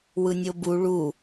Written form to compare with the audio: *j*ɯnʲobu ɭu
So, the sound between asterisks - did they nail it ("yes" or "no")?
no